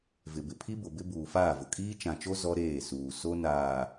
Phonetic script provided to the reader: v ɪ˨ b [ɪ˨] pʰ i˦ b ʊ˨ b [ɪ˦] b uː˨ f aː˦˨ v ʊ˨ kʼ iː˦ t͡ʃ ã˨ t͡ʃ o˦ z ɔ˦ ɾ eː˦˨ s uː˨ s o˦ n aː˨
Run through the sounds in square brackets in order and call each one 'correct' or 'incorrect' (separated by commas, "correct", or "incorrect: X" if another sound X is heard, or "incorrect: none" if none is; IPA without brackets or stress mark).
correct, correct